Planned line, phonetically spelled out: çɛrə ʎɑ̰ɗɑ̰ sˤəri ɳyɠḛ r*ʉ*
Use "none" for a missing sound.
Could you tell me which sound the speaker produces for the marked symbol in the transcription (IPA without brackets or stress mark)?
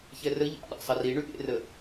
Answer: ə